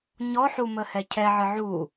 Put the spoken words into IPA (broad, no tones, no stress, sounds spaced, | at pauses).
ɲ ɔ ħ u m ə h ɛ cʰ ɛ ʕ ɨ ʕ u